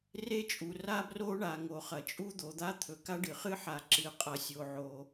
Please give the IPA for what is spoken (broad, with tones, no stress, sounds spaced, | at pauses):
r e˥ t͡ʃʼ u˩ r a˥ b r o˥ ɳ a˩ ŋ o˩ χ ɐ˩ t͡ʃʼ u˥ d̪ o˩ d̪ a˥ t̪ʰ ɵ˩ k a˥ ɖ ɨ˩ χ ɨ˥ ħ a˩ ǁ ɨ˩ qʼ ɐ˩ sʲ o˩ ʕ o˩